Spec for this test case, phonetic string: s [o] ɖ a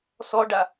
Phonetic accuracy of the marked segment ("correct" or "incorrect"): incorrect